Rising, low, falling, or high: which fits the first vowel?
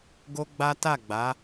high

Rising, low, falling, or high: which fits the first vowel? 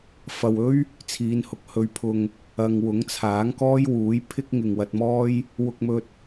low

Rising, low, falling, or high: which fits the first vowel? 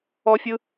high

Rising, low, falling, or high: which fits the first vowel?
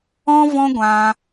high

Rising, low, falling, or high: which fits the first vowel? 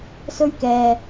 high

